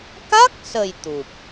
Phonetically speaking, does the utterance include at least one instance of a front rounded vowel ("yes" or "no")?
no